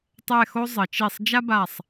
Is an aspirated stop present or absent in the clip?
absent